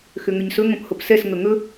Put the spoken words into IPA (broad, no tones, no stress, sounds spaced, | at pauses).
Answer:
x ʏ ŋ ʏ ɲ s ɵ ŋ õ p h o p s ɛ s ŋ ɵ ŋ ɵ